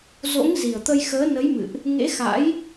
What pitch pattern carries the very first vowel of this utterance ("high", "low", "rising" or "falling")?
rising